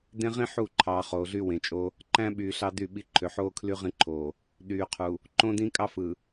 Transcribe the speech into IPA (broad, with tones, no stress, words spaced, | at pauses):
dẽ˦ʁĩ˦ ħu˦˨ǃʰɑ˨ χoː˨ɮy˦wẽ˨t͡ʃʼo˦ | ǃæ̃˦ɓyː˨ ɬɑ˦dy˦˨ɓi˦ ǃʰø˨ħoː˦kʰly˦ ʁĩ˦ǃʰoː˨ | ɗyː˨qʰu˨ | ǃõ˦dĩ˦ kʼɑ˦fɯ˨